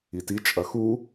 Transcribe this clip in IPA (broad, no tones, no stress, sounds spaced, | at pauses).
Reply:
i t i t͡ʃʼ ɐ x u